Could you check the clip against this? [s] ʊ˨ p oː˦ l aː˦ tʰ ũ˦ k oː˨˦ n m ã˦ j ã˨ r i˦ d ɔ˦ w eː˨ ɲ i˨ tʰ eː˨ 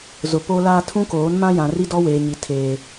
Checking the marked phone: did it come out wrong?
yes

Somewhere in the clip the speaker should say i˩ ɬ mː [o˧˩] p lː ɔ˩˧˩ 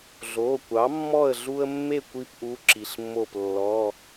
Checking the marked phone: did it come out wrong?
no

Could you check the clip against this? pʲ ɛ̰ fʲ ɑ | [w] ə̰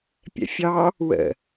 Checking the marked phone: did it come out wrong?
no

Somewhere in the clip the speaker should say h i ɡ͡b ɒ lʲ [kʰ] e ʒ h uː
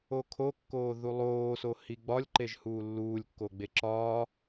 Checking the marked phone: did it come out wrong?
yes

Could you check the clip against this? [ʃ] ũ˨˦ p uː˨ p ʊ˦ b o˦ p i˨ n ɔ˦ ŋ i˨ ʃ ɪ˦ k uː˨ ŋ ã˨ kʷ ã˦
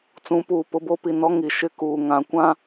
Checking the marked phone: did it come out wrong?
yes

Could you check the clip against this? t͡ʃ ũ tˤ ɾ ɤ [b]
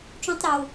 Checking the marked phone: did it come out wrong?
yes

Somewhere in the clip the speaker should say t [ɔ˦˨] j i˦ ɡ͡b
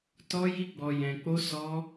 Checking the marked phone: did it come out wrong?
yes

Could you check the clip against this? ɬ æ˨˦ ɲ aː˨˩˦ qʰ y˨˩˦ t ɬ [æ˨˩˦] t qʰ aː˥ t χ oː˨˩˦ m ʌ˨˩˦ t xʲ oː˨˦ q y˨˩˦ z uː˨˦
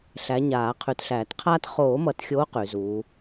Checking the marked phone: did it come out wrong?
yes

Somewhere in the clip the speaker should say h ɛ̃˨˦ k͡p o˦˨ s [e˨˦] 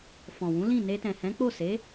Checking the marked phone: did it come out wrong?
no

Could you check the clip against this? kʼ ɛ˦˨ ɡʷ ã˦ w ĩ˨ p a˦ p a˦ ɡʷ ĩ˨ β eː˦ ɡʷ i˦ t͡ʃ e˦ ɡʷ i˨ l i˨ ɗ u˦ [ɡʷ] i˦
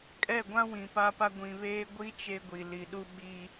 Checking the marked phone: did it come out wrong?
yes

